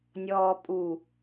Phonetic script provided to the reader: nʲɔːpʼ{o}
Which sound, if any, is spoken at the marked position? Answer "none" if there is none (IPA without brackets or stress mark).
u